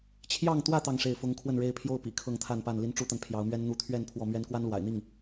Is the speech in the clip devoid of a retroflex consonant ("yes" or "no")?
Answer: no